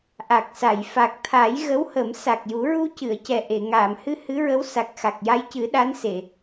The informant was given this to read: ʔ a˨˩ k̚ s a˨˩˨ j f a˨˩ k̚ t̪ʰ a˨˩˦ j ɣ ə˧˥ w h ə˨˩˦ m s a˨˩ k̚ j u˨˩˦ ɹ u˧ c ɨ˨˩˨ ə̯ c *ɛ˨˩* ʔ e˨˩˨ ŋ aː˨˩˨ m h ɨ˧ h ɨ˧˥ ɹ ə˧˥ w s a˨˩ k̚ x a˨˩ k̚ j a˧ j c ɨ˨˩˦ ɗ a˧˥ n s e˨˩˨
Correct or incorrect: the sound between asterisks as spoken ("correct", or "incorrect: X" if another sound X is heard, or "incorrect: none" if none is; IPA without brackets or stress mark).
correct